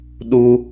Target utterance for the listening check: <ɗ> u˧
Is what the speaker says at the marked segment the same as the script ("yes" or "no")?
yes